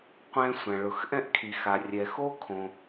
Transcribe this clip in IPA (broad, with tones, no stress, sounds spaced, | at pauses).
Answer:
qʷ ɛ̃˥ sʷ ã˩ ɭ ʊ˩ x ʔ ɛ̃˥ ʔ kʰ i˩ x a˩ rʲ ɛ˩ x o˥ kʰ õ˩